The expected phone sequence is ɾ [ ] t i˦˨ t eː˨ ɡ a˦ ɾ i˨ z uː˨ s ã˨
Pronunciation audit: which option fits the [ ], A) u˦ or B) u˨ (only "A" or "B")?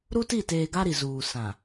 A